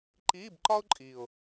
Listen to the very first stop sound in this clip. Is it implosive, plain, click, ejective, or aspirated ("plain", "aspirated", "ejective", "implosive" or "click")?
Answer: click